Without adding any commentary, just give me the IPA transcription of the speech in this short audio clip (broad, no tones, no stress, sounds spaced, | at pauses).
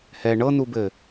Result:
h ɛ ɳ ɤ n u b ɘ